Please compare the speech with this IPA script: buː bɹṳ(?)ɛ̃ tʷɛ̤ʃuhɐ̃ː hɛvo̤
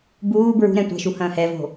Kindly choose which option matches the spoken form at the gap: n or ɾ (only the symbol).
ɾ